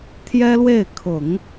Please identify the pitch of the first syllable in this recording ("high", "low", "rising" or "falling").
high